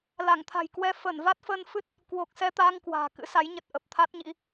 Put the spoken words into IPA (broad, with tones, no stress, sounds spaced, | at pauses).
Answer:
l a˧˩ ŋ t̪ʰ a̤˨˩ j k w ɛ˧ f əː˧˩ n v a˦˥ t̚ f əː˧ n f ɨ˦˥ t̚ | k w o˨˩ k̚ s ɛ˧ t̪ aː˧ ŋ k w a̤ː˨˩ k ɨ̰˧˥ s a˨˦ j ɲ ə˨˩ t̚ ʔ ə˨˩ p̚ t̪ʰ a˦˥ t̚ ɲ ḭ˧˥